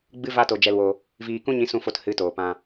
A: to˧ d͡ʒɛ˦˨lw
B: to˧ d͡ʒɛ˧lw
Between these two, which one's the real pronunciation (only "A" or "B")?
B